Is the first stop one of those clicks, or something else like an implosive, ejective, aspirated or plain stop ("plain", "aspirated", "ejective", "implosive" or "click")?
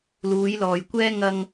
plain